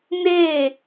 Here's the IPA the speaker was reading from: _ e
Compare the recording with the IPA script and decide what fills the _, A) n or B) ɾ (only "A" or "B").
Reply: A